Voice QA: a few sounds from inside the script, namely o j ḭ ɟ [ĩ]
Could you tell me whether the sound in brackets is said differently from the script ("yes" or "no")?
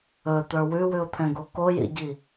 yes